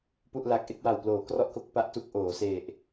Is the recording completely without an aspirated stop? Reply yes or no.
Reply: yes